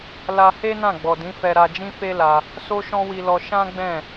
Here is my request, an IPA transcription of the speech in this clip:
l a˧ h e˦ n ã˦˨ ɡ͡b ɔ˨ d ĩ˨˦ f ɛ˧ ɾ a˧ d͡ʒ ĩ˦ f e˦ l a˧ | s o˦ ʃ ɔ̃˦ w i˧ l ɔ˧ ʃ ã˦ ɡ͡b ɛ̃˦˨

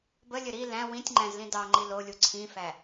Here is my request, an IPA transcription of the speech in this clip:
b ə lʲ ɘ ɾ i l æ̃ w ĩ tʲ ŋ͡ǃ æ̃ z l ĩ d ɑ ŋ͡ǃ i l o lʲ u ǀʰ ĩ f æ

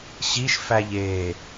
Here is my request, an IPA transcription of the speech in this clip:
ɕ i ʃ f æ ʎ e

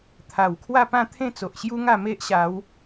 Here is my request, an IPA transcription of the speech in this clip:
t̪ʰ a˨˩ w kʰ w a˥˧ p ã˥˧ t̪ʰ ẽ˥˧ t͡s o˨ ʔ ɕ j u˦ ŋ a˥˧ m e˦ ʔ ɕ a˨˦ w

